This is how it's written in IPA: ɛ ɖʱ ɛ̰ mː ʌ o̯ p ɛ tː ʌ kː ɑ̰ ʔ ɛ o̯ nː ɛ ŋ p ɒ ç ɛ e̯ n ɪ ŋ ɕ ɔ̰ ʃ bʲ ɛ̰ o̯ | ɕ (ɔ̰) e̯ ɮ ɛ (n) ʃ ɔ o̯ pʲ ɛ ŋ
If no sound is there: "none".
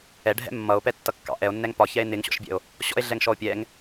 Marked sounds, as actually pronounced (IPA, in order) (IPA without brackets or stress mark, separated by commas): ɔ̰, ŋ